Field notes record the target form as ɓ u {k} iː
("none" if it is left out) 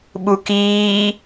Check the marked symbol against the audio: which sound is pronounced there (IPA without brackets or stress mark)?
k